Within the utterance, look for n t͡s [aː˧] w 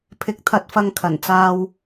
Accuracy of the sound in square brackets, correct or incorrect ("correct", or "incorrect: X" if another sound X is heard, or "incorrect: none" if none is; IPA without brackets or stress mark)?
correct